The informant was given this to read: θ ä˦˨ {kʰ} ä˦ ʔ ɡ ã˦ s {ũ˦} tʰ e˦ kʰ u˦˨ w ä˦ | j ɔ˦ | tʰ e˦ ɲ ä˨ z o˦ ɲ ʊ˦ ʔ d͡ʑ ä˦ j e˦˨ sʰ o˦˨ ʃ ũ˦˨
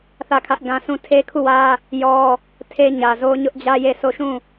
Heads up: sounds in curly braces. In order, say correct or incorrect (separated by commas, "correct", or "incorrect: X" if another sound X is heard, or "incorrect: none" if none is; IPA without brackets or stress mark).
correct, incorrect: ũ˦˨